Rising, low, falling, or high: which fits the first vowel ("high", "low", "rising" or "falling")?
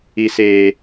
high